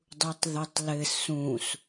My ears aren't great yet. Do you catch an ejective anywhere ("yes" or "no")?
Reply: no